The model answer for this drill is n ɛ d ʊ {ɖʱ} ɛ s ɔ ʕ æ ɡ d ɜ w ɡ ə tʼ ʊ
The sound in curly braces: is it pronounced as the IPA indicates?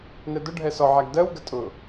yes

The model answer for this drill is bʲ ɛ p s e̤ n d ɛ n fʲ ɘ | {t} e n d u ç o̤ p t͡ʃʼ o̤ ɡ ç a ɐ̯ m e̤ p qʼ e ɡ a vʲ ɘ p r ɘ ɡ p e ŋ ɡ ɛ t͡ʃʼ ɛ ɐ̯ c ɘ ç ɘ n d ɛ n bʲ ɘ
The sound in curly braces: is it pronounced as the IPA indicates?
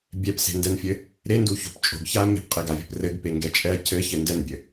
no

